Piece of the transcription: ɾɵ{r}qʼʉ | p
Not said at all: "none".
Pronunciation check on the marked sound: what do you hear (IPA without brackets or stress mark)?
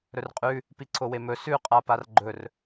r